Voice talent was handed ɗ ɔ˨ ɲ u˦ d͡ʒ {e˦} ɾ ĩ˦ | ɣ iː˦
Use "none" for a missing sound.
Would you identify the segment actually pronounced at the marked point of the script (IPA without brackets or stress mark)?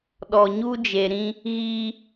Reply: e˨